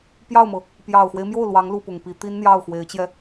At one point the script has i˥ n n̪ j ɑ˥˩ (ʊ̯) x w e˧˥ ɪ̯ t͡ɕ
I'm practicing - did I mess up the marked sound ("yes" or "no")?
no